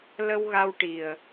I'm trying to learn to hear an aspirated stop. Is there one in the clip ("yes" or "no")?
no